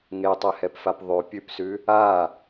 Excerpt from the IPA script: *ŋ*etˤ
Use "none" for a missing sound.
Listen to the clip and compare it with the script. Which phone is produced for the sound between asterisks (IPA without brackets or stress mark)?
ŋ